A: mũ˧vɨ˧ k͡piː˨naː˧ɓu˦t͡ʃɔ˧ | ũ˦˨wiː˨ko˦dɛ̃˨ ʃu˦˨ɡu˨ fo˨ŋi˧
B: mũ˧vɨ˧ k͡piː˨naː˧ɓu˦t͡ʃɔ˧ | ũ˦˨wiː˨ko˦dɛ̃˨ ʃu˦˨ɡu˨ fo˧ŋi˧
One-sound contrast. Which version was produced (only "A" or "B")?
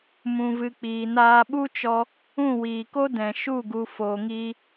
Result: A